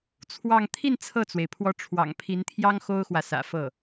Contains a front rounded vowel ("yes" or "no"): no